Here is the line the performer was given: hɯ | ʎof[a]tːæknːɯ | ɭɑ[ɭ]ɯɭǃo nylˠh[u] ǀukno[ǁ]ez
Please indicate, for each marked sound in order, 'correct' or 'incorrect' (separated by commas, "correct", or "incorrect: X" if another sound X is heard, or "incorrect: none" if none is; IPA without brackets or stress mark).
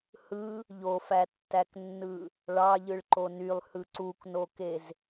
incorrect: æ, incorrect: ʎ, incorrect: ɯ, incorrect: k